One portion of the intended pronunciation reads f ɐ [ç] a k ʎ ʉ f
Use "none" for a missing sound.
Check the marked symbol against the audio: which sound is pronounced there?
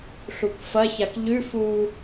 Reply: ç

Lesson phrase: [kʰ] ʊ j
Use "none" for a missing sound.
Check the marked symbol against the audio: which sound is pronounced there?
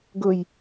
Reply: ɡ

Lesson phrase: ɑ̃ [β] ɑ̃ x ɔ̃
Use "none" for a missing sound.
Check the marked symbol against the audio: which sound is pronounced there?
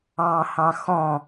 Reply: h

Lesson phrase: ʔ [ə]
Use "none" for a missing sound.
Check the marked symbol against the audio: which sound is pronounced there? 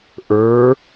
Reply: ə˞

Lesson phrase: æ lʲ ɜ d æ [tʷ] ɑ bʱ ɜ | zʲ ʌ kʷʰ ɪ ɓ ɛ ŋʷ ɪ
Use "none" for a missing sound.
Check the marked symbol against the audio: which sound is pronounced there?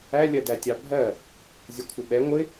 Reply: tʲ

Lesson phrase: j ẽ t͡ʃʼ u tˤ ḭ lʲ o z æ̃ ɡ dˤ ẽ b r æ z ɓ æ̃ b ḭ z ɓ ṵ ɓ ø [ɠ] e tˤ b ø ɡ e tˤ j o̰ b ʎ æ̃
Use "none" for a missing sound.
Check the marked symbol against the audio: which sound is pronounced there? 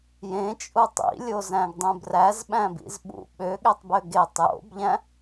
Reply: ɠ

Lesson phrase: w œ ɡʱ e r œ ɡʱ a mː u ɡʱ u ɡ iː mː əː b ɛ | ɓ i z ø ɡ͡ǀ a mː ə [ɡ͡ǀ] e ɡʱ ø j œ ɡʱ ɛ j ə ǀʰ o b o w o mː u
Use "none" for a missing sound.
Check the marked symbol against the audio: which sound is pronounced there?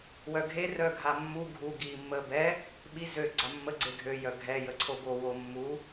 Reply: ɡ͡ǀ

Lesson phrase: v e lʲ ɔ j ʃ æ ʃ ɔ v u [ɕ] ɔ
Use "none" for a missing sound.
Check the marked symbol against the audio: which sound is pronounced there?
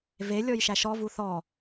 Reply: θ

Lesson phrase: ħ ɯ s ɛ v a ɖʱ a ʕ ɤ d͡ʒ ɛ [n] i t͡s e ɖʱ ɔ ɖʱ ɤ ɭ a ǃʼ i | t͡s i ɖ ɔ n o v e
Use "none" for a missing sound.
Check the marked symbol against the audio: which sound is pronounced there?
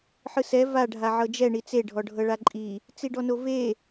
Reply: ɳ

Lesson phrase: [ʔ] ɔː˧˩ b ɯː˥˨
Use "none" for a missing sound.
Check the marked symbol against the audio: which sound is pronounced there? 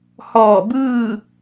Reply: h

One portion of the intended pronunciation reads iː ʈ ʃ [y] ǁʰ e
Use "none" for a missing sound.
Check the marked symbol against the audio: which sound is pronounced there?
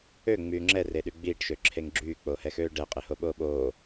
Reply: ø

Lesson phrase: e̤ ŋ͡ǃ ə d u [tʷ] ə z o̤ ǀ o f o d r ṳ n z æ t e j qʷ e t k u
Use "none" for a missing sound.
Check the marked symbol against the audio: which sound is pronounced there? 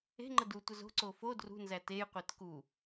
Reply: tʷ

